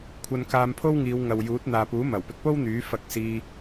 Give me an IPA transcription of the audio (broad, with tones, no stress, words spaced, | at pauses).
kʷʰɐ˧nkaː˧mpʰo˥wŋiː˨˧w ŋɐ˨wjuː˨˥t̚n̪aː˨ puː˨˥mɐ˨˩wpɪ˧k̚po˥w n̪yː˨˥ fɐ˧k̚siː˧